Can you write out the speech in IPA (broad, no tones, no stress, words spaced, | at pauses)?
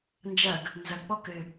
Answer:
nd͡ʒɐɡ | nzɐɡɓɔ kɘ